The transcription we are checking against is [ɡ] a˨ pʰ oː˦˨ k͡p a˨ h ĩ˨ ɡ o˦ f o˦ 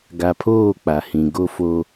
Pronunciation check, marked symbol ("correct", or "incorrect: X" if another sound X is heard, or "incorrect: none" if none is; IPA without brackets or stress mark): correct